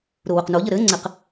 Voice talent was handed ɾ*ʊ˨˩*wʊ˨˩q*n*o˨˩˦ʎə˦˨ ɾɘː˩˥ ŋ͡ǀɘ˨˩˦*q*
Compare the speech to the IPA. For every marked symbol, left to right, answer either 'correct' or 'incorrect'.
correct, correct, correct

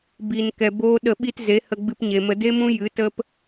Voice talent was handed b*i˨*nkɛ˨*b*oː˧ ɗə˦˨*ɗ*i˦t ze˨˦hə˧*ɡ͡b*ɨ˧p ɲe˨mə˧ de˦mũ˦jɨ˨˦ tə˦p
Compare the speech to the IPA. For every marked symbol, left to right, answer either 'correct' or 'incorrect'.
correct, correct, incorrect: ɓ, correct

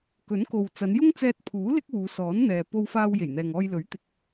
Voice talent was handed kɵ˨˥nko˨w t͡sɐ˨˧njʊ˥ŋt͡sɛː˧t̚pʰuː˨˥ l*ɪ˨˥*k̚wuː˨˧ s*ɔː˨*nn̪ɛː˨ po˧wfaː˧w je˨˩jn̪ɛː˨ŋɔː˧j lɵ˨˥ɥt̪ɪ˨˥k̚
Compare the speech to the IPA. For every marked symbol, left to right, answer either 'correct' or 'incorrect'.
incorrect: ɪ˥, incorrect: ɔː˨˥

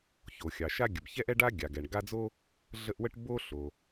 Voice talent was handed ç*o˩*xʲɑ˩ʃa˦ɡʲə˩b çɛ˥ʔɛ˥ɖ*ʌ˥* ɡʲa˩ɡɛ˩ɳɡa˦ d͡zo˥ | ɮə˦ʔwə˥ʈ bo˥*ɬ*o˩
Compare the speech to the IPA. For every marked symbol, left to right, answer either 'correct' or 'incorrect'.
correct, incorrect: a˥, correct

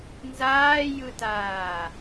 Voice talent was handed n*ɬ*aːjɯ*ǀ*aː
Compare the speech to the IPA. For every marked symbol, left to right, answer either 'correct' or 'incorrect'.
incorrect: z, incorrect: t

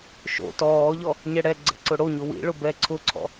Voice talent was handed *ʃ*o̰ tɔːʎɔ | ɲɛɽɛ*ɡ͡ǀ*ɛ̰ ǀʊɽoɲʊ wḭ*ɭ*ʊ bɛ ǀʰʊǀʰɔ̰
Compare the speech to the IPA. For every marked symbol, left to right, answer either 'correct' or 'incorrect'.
correct, correct, correct

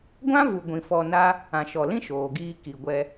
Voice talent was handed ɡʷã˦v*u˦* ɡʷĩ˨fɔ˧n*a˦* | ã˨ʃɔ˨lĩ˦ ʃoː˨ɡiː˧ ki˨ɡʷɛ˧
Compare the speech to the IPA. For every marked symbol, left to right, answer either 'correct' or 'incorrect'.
incorrect: u˨, correct

